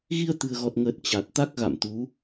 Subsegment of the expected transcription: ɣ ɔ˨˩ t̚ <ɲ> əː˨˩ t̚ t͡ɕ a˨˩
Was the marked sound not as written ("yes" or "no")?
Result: yes